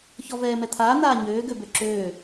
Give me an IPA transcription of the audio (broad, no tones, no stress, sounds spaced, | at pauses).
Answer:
ç ɔ v ɛː m ɛ t̪ʰ aː n̪ aː ɲ øː ɡ ø b ø ǁ øː